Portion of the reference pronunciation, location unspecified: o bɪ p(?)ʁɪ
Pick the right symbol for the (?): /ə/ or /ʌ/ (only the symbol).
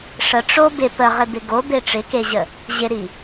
ə